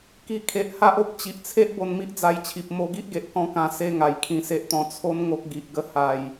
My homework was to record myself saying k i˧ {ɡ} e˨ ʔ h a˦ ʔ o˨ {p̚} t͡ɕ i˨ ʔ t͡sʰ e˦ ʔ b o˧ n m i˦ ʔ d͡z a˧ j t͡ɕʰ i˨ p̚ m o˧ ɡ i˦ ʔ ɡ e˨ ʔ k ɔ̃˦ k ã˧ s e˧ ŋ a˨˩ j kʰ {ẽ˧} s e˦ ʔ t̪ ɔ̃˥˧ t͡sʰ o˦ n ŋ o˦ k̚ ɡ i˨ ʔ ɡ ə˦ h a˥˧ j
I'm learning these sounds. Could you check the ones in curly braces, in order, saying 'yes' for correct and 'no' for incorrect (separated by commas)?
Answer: no, yes, no